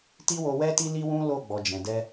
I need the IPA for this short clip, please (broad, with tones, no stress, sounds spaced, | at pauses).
t i˦ w o˧ w ɛ˦ t i˦ l i˦ w ũ˦ l o˦˨ ɡ͡b ɔ˨ d͡ʒ ɛ̃˨ d ɛ˧